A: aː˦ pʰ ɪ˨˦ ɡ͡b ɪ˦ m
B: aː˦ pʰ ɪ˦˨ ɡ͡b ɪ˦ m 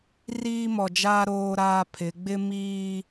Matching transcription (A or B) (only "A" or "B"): A